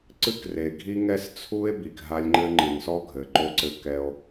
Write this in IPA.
ǀɨ˦kre˨ ɡʱi˦ŋɛ˦st͡sʰu˦e̯ bi˨kɦa˦lʲŋ͡ǃɘ˦ ŋ͡ǃɨ˨nsɔ˦ ɡʱɘ˨ǃo˦ǀɘ˦ kɛ˦o̯

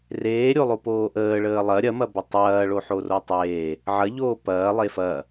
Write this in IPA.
reːɾʲolˠopoː ʔəːɭəː lˠɐ ɾʲɐmɐbɐ tˤɐːɭoħoro tˤeː | ʕɐʎoː pɐːlˠe fɐ

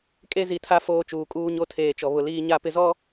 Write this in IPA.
kʼe˦zi˨tʰa˦ foː˦t͡ʃuː˨ kʼuː˦ɲo˦tʰeː˨t͡ʃɔ˨ βʊ˨liː˦ɲa˦pɪ˦ zɔ˦

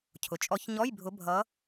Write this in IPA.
cʰʊ˩t͡ʃʼɔ˨˦ç ɲɔ˧˥˧jbʱʊ˨˦bʱʌ˨˦

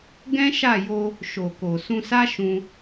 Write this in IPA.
ɡɛ̃˦ʃa˦˨jo˧ | ʃo˨ko˨ sũ˧sa˦ ʃũ˧

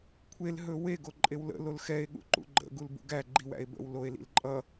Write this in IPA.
kʷʰel ɦɵwe ɡoǃʼewlə̰ lolxɛe̯ ɠṵǃṵɡ͡ǃə̰ ɡulbṵɡæ ɡ͡ǃiwæ̰e̯bə̰w loe̯lḭlǃʼʌ

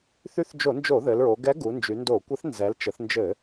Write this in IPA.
θy˧˥θd͡ʒo˧˩˧nd͡ʒo˧˩˧ ðɘ˩˧lɹo˩˧ ɡɛ˧˥ɡu˩˧ nd͡ʒy˩˧ndo˧˩˧kʷɛ˧˥θ nzɛ˩˧lt͡ʃə˩˧θnd͡ʒɘ˧˩˧

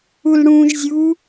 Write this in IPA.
ulɽũːʒzʲu

